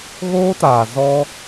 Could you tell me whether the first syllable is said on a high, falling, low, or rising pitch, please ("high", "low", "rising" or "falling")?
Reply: high